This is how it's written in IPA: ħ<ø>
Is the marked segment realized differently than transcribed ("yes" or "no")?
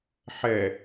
yes